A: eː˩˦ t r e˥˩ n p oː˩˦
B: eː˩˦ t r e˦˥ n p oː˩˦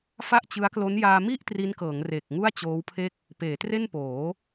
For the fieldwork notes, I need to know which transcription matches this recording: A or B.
A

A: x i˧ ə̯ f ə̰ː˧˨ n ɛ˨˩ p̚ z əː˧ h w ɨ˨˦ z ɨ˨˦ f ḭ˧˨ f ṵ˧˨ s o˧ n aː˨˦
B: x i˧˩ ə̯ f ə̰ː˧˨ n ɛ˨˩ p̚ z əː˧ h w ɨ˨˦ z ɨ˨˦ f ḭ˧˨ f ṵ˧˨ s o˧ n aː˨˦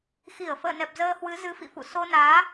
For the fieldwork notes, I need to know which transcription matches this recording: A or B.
B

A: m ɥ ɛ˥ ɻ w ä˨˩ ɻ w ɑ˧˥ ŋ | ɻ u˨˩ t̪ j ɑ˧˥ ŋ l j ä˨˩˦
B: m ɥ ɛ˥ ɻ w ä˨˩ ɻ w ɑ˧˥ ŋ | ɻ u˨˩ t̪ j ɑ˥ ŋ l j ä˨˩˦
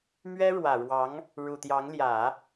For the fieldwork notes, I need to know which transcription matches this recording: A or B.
A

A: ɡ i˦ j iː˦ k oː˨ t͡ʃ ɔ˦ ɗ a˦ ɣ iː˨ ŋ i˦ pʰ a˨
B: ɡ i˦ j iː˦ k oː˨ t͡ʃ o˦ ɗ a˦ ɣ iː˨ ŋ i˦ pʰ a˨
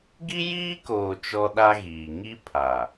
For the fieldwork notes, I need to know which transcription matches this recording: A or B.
A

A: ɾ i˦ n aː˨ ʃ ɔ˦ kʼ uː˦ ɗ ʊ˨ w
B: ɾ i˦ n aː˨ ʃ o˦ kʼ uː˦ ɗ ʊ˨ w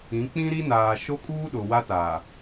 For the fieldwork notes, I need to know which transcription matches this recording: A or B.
B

